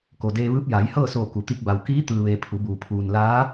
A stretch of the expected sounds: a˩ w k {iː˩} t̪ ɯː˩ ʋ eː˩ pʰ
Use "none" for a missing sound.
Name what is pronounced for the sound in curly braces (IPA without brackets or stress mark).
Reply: iː˧˥